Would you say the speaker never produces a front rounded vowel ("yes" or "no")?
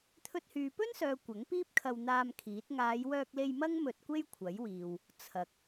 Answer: no